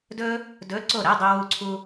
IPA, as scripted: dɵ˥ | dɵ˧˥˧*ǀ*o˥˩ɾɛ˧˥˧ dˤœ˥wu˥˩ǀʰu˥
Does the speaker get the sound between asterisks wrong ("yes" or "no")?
no